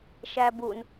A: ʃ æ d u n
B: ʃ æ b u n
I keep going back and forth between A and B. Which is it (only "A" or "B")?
B